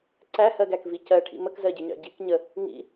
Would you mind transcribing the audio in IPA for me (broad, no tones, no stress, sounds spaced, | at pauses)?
ǀ æ h ɜ ɡ æ k v i c ɜ ʈʰ ḭ m ə k z ɜ ɟ ɪ ɲ ɑ̰ ɟ i k ɲ ə | ŋ ḭ